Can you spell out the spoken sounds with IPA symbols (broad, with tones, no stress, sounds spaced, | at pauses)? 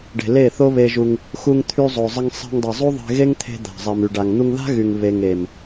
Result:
ɖ e̤˨ l e˦˨ θ o˦ β e˧ ʒ u˧ ŋ | x u˧ ŋ t̪ʰ y˧ zˤ o˨ zˤ ə˧ ŋ sˤ e̤˧ ŋ dˤ e˨ zˤ u˦ ðˤ e̤˧ ɣ e˦ ŋ t̪ʰ e̤˧ d̪ a̤˨ zˤ e˨ m y˨ ɖ a˨ ŋ n̪ u˧ ŋ ð a̤˦ ɣ y˨ ŋ β e˨ ŋ e˨ m